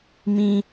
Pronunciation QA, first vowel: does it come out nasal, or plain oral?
nasal